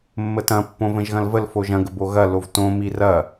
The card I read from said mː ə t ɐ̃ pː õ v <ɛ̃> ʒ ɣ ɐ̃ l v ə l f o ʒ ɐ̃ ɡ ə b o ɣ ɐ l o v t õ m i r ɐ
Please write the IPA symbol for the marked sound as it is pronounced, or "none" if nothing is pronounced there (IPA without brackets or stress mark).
ə̃